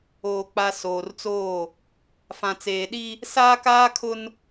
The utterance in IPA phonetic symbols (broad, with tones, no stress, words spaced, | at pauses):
oː˨k͡pa˨ soː˨rt͡soː˦˨ | fã˨t͡seː˨ɗi˦ | saː˦kaː˦kʰʊ˦n